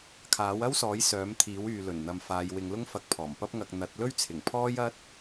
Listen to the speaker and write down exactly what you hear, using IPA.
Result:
kʰ aː˨˥ w ɐ˥ w s ɔː˨˥ j s œː˨˥ m t̪ʰ iː˨˥ w yː˨ l ɵ˨˩ n n̪ ɐ˨ m f aː˨˧ j w ɪ˨˧ ŋ l ʊ˥ ŋ f ɐ˧ k̚ pʰ ɔː˨˩ m p ɐ˥ p̚ ŋ ɐ˧ k̚ n̪ ɐ˨˥ t̚ l ɵ˥ ɥ t͡sʰ ɪ˨˩ ŋ pʰ ɔː˥ j ɐ˥ t̚

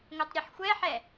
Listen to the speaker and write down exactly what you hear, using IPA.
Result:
ŋʷ ɛ tˤ ɾʲ ʌ ħ xʷ ɛ ħ ɛ

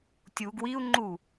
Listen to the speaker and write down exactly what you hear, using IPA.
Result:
tʲ u ɡ w i u̯ ŋ͡ǃ u

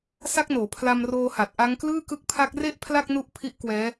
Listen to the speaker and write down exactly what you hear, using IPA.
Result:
s a˦˥ k̚ n oː˩˦ pʰ l a˧ m r oː˧ h a˨˩ t̚ ʔ a˦˥ ŋ k l ɯː˥˩ k ɯ˦˥ k̚ pʰ a˦˥ k̚ r e˥˩ ʔ pʰ l a˥˩ k̚ n u˦˥ ʔ pʰ i˦˥ ʔ k w ɛː˦˥

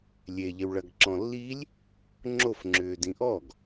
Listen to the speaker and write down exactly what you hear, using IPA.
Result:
lʲ e ʎ ɪ w ɭ ɐ ɡ ǁ ɔ̃ lː i lʲ | ŋ͡ǁ o f ŋ͡ǁ ʏː d ĩ ʔ ɔ ɡ

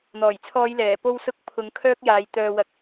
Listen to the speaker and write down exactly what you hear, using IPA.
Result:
n̪ ɔː˨˩ j t͡sʰ ɔː˨˧ j l ɛː˨˩ p o˨ w s ʊ˨ k̚ pʰ ʊ˨˧ ŋ kʰ œː˥ k̚ j aː˨˧ j t̪ œː˨ w ɐ˨˥ k̚

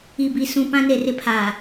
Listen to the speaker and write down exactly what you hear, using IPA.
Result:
i˨ b i˨ s ũ˨ p ã˦ n e˨ r ɪ˦ pʰ aː˨

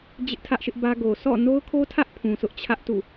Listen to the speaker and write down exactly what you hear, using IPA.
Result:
d͡ʑ ɪ˦ ʔ tʰ ä˦ ʔ ʃ ɪ˦ ʔ b ä˦ ɡ o˨ s ɔ̰˦˨ n o˦ ʊ̯ kʰ o˦ tʰ ä˦ ʔ pʰ ũ˨ sʰ ʊ˦ ʔ t͡ɕʰ ä˦ ʔ t ṵ˦˨

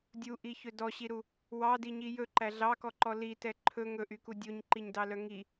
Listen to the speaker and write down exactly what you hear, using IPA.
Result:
dʲ u ʔ i ç ɵ d ɔ ɕ i ɾ u | w ɑ d i ɲ i j ɵ ǃ æ ɮ ɑ k ɔ ǃ ɔ l i t ɛ ǃʰ ɵ ŋ ɵ ʔ y k u dʲ o ɲ ǃ i ɲ d ɑ l œ ŋ i

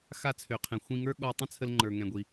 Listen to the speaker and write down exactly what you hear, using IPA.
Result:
x a˧ t͡sʰ ø˩ qʰ ɛ̃˩ xʷ ĩ˧ ŋ ə˞˥ ɠ ɔ˧ tˤ ə̃˥ t͡sʰ ə˧ l ŋ͡ǃ ə˞˩ ŋ ɛ̃˩ ɡʷ i˩

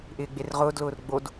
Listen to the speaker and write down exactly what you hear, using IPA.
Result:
ʔ ɪː ɡ͡b e r ʁ ʊː d l ʊː r ɡ͡b o d

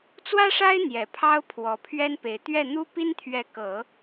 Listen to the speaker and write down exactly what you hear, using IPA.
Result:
t͡s w ä˥ ʂ a˥ ɪ̯ n̪ j ɛ˨˩ pʰ ɑ˥ ʊ̯ pʰ w ɔ˨˩ pʰ ɥ ɛ˥ n p e˨˩ ɪ̯ t̪ ɥ ɛ˥˩ n̪ u˥ p i˥ n t̪ʰ ɥ ɛ˧˥ k ɤ˨˩˦

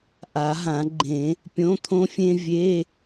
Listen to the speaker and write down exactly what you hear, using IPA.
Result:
ʔ a˨˩˦ ɦ ã˨˩˦ ɡ͡ǃ ẽ˨˩˦ | pʲ õ˧˥˧ t̪ʰ õ˥ fʲ ẽ˥ vʲ e˧˥˧

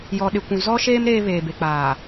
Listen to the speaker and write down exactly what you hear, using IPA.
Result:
j ɔ˨ ɗ ɪ˨ kʷ ũ˨ z ɔ˦ ʃ eː˦ m ɾ eː˦ β eː˨ b e˨ k͡p aː˨

